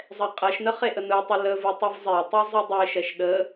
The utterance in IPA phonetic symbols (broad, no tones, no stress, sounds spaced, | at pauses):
zˤ ɛ qʼ ɛ ʃ n ə χ e ʔ ə n ɯ tˤ ə l ə v ɯ tˤ ɯ v zˤ e tˤ e zˤ ɯ dˤ e ʃ ɛ ʃ ɗ ə